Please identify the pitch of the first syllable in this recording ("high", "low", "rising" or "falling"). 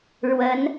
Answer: rising